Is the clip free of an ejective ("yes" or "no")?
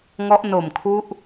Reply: yes